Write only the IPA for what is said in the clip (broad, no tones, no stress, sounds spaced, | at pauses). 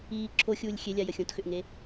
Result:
iː ǁʰ o xʲ uː lʲ xʲ e lʲ a j ə xʲ õ t x ʏ ʔ ŋ e